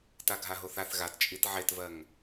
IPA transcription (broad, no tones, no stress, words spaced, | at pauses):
taɡʱaɦoθaθ ɣatt͡ʃʼit ʕetvɜŋ